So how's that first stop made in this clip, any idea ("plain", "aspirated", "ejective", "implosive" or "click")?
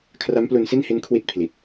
aspirated